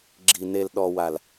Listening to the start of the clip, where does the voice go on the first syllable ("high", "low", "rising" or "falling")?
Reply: low